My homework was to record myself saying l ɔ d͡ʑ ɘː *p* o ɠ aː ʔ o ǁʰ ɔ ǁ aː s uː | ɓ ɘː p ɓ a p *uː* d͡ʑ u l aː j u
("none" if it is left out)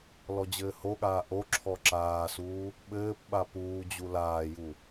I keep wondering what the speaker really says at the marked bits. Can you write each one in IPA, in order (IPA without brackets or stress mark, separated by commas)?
h, uː